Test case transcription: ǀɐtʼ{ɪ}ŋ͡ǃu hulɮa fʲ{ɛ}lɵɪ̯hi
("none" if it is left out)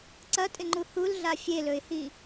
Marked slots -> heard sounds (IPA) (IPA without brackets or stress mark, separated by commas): ɪ, e